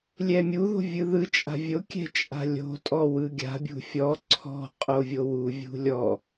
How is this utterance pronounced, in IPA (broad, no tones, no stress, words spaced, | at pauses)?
lʲɛmʲuðo̤ vʲɯðɯt͡ʃʼa̤ vʲokʲɛ̤ t͡ʃʼa̤lʲo̤tʼɔ wɯɡʲa̤bʲṳ fʲɔ ǀʰɔ̤qʼo vʲowuvʲṳ lʲɔ